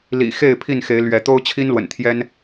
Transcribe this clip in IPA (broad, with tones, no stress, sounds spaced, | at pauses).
l ḭ˨˩ x e˥˨ ɪ̯ pʰ i˥˨ n x e˨˦ ɪ̯ l ɥ ɛ˨˦ t̪ o˦ ʊ̯ t͡ɕʰ i˦ n l w ə̰˨˩ n t̪ʰ j ɛ˦ n